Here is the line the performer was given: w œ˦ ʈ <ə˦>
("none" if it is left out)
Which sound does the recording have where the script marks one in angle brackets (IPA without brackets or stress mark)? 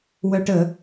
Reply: ə˨˦